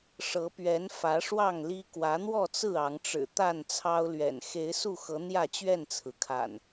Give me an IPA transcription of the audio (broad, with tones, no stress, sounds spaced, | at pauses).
ʂ ɤ˨˦ p ɥ ɛ˨˦ n f ä˨˦ ʂ w ɑ˥˨ ŋ l i˦ k w ä˨˦ n̪ w ɔ˥˨ t͡s ɹ̩˥˨ ɑ˨˦ ŋ ʈ͡ʂ ɻ̩˨˩ t̪ a˥˨ n t͡sʰ ɑ˦ ʊ̯ l ɥ ɛ̰˨˩ n x e˨˦ ɪ̯ s u˥˨ x ɤ˨˦ n̪ j ä˥˨ t͡ɕ ɥ ɛ˥˨ n t͡sʰ ɹ̩˩ kʰ a̰˨˩ n